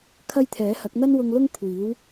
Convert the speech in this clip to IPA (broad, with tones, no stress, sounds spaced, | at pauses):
kʰ ɐ˥ j t̪ʰ ɛː˨˥ h ɐ˨˥ k̚ n̪ ɐ˥ n w ʊ˧ ŋ l ʊ˥ ŋ kʷʰ iː˨˥ w